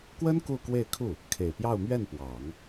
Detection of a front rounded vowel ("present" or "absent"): absent